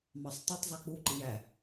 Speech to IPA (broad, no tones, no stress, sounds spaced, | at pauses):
m ɑ sˤ tˤ u tˤ zˤ ɯ k͡p u ǃ i j æ